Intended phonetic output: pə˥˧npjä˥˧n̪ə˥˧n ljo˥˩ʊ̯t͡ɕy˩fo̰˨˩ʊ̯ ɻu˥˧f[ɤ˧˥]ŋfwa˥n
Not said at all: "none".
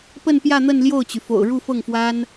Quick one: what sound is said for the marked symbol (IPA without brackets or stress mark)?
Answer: ɤ˥˩